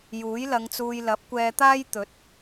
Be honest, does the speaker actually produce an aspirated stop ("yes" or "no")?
no